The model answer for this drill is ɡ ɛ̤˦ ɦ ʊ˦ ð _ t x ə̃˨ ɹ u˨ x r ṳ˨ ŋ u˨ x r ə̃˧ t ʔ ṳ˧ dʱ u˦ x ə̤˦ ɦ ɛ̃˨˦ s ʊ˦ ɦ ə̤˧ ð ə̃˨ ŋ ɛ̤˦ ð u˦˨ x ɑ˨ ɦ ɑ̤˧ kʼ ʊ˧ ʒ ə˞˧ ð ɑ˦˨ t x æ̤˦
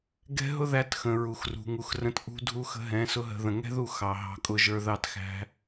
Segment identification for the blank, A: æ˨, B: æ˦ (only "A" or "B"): B